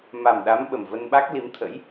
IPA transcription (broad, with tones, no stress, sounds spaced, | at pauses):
m a˨˩ m ɗ a˨˦ m ɓ ə˨˩ m v ə˧ n ɓ a˦˥ k̚ l i˨˦ m t̪ʰ ə̰˧˥ j